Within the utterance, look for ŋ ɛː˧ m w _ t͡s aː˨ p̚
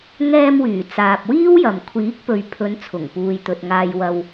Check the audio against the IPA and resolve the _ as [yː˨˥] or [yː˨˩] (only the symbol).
yː˨˩